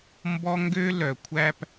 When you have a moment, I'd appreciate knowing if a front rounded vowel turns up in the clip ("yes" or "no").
yes